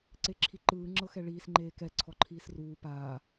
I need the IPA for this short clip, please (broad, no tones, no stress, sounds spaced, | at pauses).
ǀ e ǁʰ i ǃ ɯː ŋ͡ǁ ɤ x ɛ ɭ iː s ŋ͡ǃ eː k ɛ ǀʰ ɔ ǃʰ iː s r uː p aː